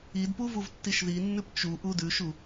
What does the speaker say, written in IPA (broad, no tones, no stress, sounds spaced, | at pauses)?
i d p u v u v tː i ʃ ð i nː ʉ p t͡ʃ u ʔ u d ʉ ʃ u